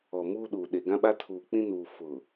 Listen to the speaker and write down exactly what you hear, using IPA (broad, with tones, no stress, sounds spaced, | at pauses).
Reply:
ɔ˨ m uː˦ ɗ uː˨ ɗ e˨ ɡ ã˦ ɓ a˦ tʰ uː˨ k͡p ĩ˦ n uː˨ f ʊ˨